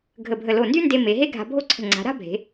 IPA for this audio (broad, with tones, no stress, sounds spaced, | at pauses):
ɡʱ ə˧˩ bʱ ə˧˩ l o˧˩ n d y˥ n d e˧ m e˩˧ ɦ e˥ ɡʱ a̤˧ bʱ o˥ ǀʰ ə̤˧˩ ŋ͡ǀ a̤˩˧ ɾ a̤˥ bʱ e̤˩˧